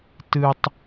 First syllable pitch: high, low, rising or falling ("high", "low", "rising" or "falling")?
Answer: low